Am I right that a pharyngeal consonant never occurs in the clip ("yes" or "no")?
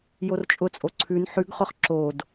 no